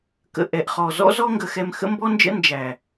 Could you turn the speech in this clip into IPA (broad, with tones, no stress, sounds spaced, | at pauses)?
k ə̰˧ ʔ ɛ˨ ʔ χ ɔ˨ z ɔ̰˦ z ɔ˦ ŋ ɡ ə˧ x ɛ˧ m x ə̰˦ m b ɔ˦ n d͡ʒ ə̰˦ n d͡ʒ æ˨